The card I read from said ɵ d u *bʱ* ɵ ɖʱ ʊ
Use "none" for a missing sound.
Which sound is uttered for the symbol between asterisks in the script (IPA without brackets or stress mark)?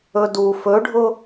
f